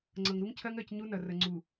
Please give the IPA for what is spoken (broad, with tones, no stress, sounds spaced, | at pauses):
ŋ͡ǀ ɤ˨ ŋ ɾ u˦ ŋ cʰ ɜ˦ ŋ ɜ˦˨ c ɲ u˦ n ɐ˨ r ə˨ ŋ͡ǀ u˨